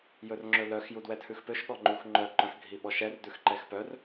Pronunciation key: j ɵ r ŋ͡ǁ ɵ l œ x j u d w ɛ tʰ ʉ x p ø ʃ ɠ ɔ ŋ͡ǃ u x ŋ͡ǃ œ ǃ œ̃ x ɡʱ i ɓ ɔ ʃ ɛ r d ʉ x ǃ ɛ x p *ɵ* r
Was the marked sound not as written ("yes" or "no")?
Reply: yes